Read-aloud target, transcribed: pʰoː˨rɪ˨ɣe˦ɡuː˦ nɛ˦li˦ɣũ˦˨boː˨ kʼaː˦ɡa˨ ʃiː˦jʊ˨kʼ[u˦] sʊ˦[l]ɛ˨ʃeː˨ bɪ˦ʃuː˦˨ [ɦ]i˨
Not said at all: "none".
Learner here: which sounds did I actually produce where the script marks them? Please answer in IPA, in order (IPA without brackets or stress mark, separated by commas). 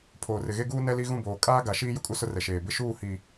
u˦, r, h